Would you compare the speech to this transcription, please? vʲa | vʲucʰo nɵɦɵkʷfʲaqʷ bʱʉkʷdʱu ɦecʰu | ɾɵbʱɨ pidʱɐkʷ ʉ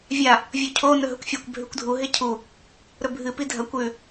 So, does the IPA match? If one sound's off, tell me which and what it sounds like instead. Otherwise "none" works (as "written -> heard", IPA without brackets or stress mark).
qʷ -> kʷ